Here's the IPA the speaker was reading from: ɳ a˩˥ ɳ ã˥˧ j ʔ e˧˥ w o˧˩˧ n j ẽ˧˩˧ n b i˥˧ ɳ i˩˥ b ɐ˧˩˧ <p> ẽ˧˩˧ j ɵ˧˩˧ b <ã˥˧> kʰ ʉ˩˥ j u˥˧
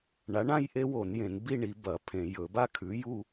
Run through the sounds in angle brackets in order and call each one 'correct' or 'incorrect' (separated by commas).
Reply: incorrect, incorrect